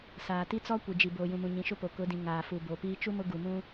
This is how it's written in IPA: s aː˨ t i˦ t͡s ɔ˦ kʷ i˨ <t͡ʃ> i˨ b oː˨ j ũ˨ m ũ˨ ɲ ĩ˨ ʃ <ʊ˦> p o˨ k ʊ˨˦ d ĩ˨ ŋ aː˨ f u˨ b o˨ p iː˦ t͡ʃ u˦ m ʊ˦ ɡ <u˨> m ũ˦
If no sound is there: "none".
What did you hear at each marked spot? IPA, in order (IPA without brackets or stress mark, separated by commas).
d͡ʒ, ʊ˦, u˨